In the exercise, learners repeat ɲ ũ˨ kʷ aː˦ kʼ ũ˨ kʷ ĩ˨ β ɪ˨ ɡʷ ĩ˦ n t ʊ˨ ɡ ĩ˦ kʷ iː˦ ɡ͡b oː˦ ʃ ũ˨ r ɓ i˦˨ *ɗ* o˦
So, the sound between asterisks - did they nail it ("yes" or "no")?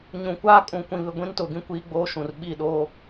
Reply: yes